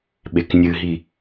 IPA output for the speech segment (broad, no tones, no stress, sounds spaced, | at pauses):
ɓ e k nʲ ɨ ɦ i